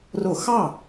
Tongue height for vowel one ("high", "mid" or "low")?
mid